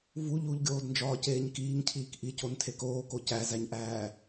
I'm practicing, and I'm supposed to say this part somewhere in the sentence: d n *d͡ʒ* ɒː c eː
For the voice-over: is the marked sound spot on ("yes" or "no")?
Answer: yes